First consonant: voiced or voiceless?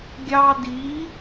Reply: voiced